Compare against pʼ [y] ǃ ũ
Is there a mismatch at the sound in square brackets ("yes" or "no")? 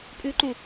no